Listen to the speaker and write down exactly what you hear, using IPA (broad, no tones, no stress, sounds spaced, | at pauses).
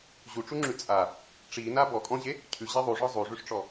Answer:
ʑ u ʈ͡ʂ u ŋ͡ǁ ʉ t͡sʼ a | ʈ͡ʂ i n a b ɔ kʼ ɔ̃ ʑ e | cʰ ʉ ʑ e ðˤ u ʐ ɔ zˤ u ʐ ʉ ʂ ʈ͡ʂ ɔ